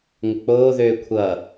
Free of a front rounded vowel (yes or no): no